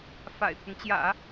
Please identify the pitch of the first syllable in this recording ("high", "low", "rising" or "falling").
low